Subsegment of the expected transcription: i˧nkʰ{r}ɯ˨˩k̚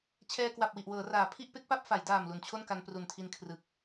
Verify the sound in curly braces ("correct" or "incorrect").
correct